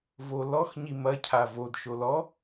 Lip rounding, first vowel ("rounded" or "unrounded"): rounded